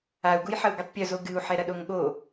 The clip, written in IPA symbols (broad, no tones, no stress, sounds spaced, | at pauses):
a u̯ ɡ u j ħ ɐ u̯ ɡ ɨ tˤ pʲ o z o ɡ ɨ u̯ ħ ɛ ɾ ɐ ɗ o ŋ ɠ o